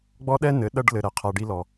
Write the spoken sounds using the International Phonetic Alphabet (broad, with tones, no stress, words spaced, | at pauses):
ɡ͡bɔ˦ɗɛ˦nɘ˨˦ ɗɐ˦ɖ lɘ˧ ɾɛ˨qʰa˧ɖi˦lɔ˧